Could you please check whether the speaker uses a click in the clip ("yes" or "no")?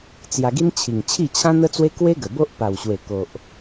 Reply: no